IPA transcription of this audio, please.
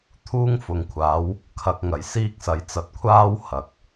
t̪ʰuː˥ŋfʊ˨ŋkʷʰaː˨˥w | kʰɐ˧k̚ŋɐ˨˩j siː˥k̚sɐ˨j t͡sɐ˨˥t̚kʷʰaː˥w hɐ˨k̚

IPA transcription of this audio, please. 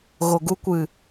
ɣo˨ɡu˧kʷɨ˨

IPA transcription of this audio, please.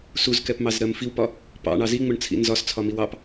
suzkɛpmɑzɾɜm fiwpɒ | pɑ̰ɳɑ ziŋ͡mʊɳt͡sʰḭ nzɒst͡sʰɒmiw ɑp

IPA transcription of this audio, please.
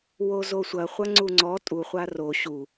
wozosʷɐ χʷɐŋ͡ǀuŋ͡ǀɔ tʼu χʷaro ɕu

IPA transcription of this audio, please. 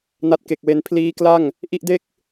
na˦˥t̚ke˨˩k̚we˦˥n pʰliː˦˥kla˥˩ŋ | ʔi˥˩ʔde˥˩k̚

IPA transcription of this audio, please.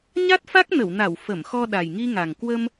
ɲa˦˥t̚fa˦˥k̚nə˧˩wna˧˩w fə˧˩mxɔ˧ ɗa˨˩jŋi˧ŋa˨˩ŋ kwə˧m

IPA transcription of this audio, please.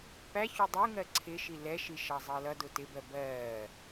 pæ çudˤuŋɜ ǀʰɪʃi lɛʃi ʃɑzˤɜlʌdʊ tɪbɜ bɜː

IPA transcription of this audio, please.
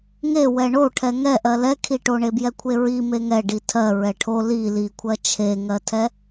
ŋewɛ ɳoʈʰɛ ŋɛʔɜ lɛkʰiʈo ɳebjɛkʷʰeɹi meŋɛ ɖitʰɜ ɹɛʈʰo li likʷʰɜ t͡ʃʰeŋɜtʰɛ

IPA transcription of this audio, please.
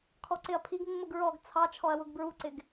kʰɔǀɪɐ̯pʰiɡ mːʊɡɹɔɡ t͡sʰɑt͡ʃʰɔɐ̯wʊɡ bɹuǀɪɡ

